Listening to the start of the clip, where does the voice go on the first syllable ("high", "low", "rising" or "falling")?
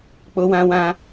high